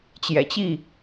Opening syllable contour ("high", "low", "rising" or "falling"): low